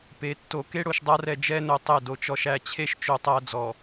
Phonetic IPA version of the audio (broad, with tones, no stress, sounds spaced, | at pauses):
p e˨ tː o˨ k e˦ ɽ o˨ ʃ dˤ a˦ r ɛ˨ d͡ʒ ɛ˦ n o˨ tˤ e˦˨ d o˨ t͡ʃ ɔ˨ ʃ æ˨ t͡ɕʰ e˦ ʃ t͡ʃ o˨ tˤ æ˨ d͡z ɔ˨